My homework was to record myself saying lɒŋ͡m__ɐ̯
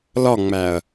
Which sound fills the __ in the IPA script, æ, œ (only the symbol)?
æ